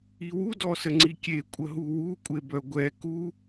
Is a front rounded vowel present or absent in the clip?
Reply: present